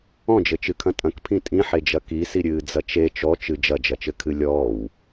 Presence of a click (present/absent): absent